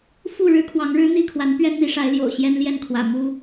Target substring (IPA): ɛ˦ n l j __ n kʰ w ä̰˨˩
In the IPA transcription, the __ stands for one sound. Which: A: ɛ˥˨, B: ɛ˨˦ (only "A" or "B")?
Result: A